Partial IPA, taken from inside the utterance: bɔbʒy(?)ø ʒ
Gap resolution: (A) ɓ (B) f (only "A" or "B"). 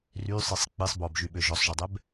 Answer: A